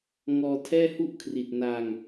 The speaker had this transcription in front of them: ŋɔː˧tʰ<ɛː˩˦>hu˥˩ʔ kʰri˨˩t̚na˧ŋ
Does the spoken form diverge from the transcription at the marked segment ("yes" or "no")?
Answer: yes